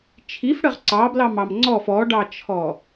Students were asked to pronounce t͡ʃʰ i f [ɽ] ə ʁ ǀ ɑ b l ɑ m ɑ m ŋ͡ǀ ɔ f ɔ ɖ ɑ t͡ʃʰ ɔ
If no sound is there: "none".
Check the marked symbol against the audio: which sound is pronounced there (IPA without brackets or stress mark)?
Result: ɽ